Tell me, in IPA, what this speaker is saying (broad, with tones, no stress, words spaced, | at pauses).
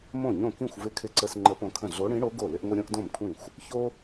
mõ˥˩ɲõ˥˩ kĩ˥˩xʷvɪ˧˥kʰɪ˧ǀə˧s ŋ͡ǃə˧˥põ˧kʰə̃˥˩ ɮo˧˥ɽĩ˧˥ɽo˧˥ ɡo˥˩lɪ˥ʔŋʷɪ˥ ɾʲõ˥ʔdõ˥˩mkʷʰĩ˥˩xʷ | ço˥